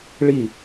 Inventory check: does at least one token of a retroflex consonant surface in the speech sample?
yes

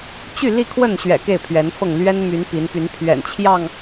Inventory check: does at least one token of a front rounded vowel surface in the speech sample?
yes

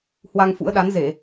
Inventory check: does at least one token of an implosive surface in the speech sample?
yes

